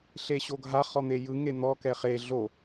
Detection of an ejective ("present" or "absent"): absent